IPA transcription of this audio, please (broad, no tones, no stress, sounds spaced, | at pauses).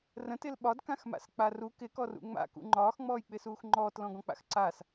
r ə̃ t ɪ l ɓ ɒ d k ã x m a̰ s k͡p a r u k ɪ k ɔ r ṵ ŋ͡m a̰ k ṵ ŋ͡ǃ ɒː x ŋ͡m ɔː j k͡p ɪ s uː x ŋ͡ǃ ɔː t l ɔ̃ ɡ ɔ̃ k͡p a̰ x ǀ a s